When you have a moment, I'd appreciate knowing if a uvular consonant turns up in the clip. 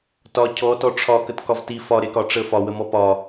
no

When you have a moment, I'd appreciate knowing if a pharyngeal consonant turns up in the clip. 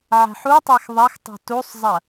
yes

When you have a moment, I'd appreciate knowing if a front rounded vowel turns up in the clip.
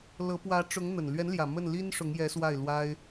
no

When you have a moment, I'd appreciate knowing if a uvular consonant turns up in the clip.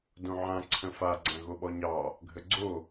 no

